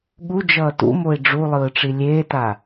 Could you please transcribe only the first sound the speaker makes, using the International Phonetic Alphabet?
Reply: ɠ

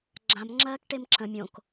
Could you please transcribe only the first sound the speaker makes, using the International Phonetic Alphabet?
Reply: ɡ͡ǁ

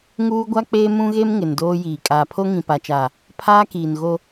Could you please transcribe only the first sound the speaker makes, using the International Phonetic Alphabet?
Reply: ŋ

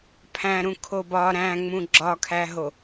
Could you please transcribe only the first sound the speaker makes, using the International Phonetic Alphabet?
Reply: pʰ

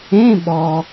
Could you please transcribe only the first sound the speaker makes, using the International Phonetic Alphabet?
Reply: ẽ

